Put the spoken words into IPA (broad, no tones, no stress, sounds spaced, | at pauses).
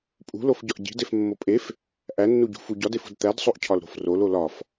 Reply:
pʼ ṳ l o f ɟ ɒ ʔ ɟ i̤ d e f mː o pʼ e f | ʔ æ nː u ɟ ṳ f u ɟ ɒ d e f ṳ d t̪ æ d sˤ o ʔ cʰ ɒ l ɾ o̤ f r o l o l ɒ f